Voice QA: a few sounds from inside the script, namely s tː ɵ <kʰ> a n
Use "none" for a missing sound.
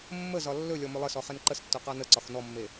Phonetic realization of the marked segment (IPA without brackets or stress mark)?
q